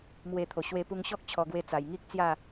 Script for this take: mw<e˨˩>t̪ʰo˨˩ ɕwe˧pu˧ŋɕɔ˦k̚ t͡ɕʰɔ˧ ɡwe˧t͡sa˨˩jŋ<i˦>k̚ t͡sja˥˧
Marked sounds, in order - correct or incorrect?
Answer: incorrect: e˧, correct

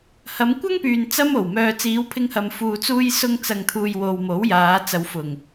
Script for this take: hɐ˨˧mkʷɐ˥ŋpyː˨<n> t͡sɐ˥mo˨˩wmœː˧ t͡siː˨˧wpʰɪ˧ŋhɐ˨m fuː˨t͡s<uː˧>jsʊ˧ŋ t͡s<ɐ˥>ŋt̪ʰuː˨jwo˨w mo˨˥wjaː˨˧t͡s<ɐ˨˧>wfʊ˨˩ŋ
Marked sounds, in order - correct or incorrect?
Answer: correct, correct, incorrect: ɐ˨, correct

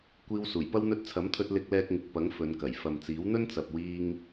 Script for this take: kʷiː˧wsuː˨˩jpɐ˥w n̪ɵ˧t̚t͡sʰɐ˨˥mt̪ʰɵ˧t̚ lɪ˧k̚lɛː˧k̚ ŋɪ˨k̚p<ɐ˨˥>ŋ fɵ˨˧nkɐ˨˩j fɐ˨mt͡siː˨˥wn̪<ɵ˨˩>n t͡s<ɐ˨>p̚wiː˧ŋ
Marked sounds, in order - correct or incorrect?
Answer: correct, incorrect: ɵ˥, correct

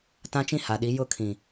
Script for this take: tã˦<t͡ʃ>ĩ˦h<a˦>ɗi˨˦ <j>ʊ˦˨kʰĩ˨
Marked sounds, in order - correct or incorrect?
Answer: correct, incorrect: a˨, correct

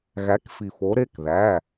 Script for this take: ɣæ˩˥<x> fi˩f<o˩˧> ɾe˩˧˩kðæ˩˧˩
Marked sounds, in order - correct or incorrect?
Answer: incorrect: k, correct

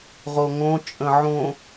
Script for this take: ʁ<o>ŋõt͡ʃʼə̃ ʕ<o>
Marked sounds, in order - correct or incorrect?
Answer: correct, incorrect: õ

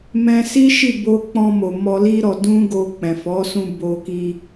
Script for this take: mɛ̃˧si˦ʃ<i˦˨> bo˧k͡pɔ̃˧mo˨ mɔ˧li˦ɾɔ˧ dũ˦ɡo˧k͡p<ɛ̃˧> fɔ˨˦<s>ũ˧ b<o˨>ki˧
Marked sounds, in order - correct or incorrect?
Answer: correct, incorrect: ɛ̃˨, correct, incorrect: o˧

